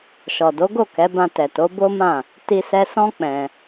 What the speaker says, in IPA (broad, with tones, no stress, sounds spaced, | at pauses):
ʃ ɔ˨ d o˨˦ ɡ o˦˨ k ɛ˨˦ b ã˧ t ɛ˨ t o˨˦ b o˦ m ã˦˨ | t i˧ s ɛ˧ s ɔ̃˦ k͡p ɛ̃˧